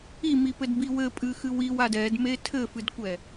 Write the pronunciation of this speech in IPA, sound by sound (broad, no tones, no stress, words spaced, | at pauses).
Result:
imipɘdbi wɘpʼɨxɨw iwad ɛdme tʰɘfɨdkʷɛ